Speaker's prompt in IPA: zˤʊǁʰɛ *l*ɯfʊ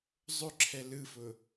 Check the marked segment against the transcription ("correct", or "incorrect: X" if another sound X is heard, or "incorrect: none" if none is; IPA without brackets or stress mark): correct